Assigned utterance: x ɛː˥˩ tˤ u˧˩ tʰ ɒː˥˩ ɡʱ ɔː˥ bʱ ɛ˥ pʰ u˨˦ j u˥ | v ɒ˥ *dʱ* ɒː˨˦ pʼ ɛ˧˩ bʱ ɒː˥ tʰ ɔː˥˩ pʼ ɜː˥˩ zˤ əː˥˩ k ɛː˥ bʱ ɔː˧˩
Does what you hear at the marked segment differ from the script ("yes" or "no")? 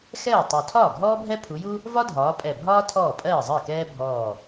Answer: no